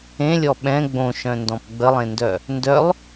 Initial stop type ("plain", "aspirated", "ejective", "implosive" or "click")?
implosive